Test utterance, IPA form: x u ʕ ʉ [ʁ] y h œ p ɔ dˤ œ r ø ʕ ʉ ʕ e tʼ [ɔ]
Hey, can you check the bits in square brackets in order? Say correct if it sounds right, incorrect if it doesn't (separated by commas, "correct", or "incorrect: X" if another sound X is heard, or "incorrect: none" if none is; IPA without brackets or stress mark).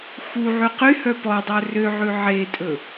incorrect: q, incorrect: ɵ